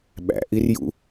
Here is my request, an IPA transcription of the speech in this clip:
ɓ æ̰ ʔ i r j ṵ

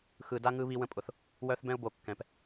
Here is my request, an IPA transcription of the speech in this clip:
x ɯ˨ d a˦ ŋ ɯ˦ β i˦ w ə̃˦ pʼ ʊ˨ θ | w œ˦ θ b ɛ̃˦ ʊ̯ b o˨ kː ɛ̃˨ p

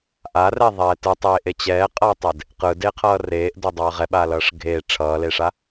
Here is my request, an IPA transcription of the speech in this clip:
ʔ a r ɛ ðˤ ɛː t ɯ tˤ eː ʔ e t͡ɕ ɛː qʼ ʌː tˤ e d | q ɯ d eː qʰ ʌː r eː ʔ d o dˤ ʌː ʁ ɛ ɓ aː l ʌː ʂ ɡʱ eː ʈ͡ʂʰ ʌː l e ʂ a

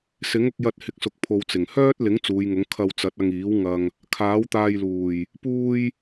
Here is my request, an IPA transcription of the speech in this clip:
s ɪ˨˥ ŋ ʊ˧ k̚ j ɐ˧ t̚ h ɪ˨ k̚ s ʊ˨ k̚ pʰ o˨ w t͡s ɪ˨˩ ŋ h œː˥ t̚ l ɪ˨˥ ŋ t͡s uː˨˧ j ŋ ʊ˨˥ ŋ kʰ ɐ˧ w t͡s ɐ˨˥ t̚ ɐ˧ ŋ iː˨˥ w ŋ ɐ˨ ŋ | kʰ aː˨˥ w t̪ aː˧ j l uː˨˩ j | p uː˧ j

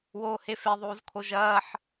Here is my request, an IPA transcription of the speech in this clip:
w oː h e f e ðˤ uː z kʰ o ʒ ɐː ħ

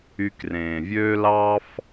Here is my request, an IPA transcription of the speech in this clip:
y˨ k r ẽː˩ vʲ øː˦ l ɑ˥ f

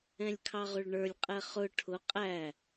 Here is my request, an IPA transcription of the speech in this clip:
ɛ̃ lʲ kʰ ɑ ʁ ʊ ɭ ɳ ə˞ lʲ qʼ ɛ χ ʊ ʈʰ ʊ qʼ æ

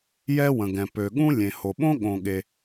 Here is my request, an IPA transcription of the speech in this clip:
j ɛ˥ w ə̃˩ ɡ ɛ̃˩ p ø˩ ɠ ũ˥ lʲ ẽ˩ h o˩ ɓ õ˥ ɠ õ˩ ɠ e˩

